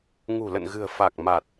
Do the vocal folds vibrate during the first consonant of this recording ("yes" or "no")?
yes